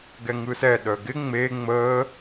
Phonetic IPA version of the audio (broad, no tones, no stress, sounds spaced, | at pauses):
ɡ ɛ ŋ ɯ s ɛ ɗ œ ɡ ɪ ŋ͡m e ŋ͡m əː